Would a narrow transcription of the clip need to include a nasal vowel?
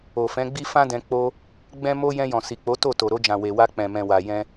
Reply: yes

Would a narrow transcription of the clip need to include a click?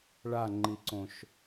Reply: yes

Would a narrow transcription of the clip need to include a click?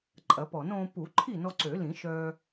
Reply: yes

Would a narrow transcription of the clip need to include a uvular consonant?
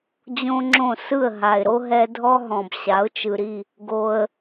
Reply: no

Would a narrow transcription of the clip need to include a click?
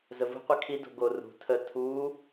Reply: no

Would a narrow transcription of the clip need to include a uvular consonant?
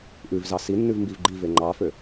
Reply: no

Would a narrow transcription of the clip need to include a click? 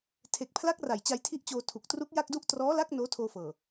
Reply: no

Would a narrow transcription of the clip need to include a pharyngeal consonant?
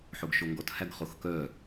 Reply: yes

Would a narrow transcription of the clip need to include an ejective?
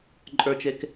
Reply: yes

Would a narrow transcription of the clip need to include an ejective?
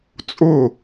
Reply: yes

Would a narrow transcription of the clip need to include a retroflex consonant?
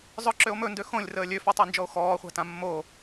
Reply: no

